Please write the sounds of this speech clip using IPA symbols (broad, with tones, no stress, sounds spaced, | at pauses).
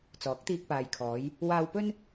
t͡s ɔː˨˥ k̚ t̪ iː˧ k̚ p aː˨ j kʰ ɔː˨˧ j | w aː˧ w p ɵ˥ n